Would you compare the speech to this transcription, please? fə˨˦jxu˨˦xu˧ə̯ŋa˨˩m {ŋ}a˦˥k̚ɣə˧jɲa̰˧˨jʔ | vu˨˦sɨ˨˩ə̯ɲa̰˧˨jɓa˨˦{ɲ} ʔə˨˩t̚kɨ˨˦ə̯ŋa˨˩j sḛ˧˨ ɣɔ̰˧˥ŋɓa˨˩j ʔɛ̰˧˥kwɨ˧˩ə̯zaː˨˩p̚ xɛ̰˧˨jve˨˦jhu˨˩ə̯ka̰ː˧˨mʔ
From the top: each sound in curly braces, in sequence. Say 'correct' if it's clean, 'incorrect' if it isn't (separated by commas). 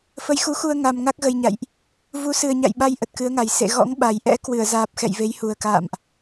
correct, incorrect